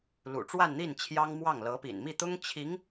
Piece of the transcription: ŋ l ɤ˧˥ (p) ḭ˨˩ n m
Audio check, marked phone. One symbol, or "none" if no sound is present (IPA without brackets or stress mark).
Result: p